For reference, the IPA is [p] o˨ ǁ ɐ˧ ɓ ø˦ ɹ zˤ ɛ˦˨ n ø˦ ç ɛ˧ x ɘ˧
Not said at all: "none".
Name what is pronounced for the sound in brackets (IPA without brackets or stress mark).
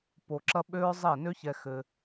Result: p